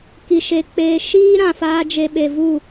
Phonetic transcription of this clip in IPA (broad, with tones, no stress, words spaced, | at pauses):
ki˧ʃe˧k͡peː˧ ʃiː˦ɾã˨faː˧ d͡ʒe˧ɓe˨vu˦˨